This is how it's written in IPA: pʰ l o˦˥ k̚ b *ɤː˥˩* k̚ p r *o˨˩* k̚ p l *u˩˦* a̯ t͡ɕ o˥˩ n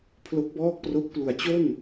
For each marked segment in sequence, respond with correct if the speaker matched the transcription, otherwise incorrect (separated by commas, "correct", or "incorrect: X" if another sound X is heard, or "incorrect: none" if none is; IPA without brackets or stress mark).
incorrect: ɔː˥˩, incorrect: o˦˥, correct